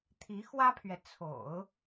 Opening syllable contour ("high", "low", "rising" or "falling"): rising